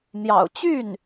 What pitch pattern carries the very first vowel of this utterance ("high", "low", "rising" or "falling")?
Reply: low